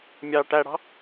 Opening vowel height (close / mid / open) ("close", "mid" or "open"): open